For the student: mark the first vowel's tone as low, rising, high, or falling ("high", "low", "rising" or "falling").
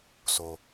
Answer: low